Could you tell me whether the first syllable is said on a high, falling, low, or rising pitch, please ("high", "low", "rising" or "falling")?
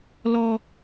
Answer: high